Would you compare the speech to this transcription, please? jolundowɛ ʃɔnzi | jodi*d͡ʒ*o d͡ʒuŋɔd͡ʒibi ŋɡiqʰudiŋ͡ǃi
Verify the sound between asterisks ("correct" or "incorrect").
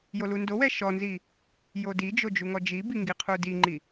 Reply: correct